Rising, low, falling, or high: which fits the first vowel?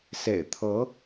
low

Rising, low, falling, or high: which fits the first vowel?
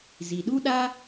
low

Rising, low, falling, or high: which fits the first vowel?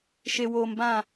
low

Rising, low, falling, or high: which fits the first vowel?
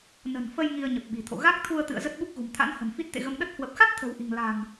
low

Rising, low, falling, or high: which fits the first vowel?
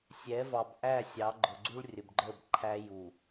rising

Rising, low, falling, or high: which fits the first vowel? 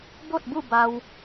falling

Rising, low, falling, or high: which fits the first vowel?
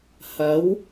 rising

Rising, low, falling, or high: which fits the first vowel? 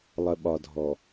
low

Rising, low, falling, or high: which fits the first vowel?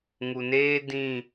low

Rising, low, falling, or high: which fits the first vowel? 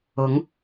rising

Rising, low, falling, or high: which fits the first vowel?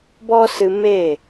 high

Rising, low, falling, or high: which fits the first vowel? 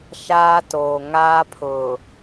high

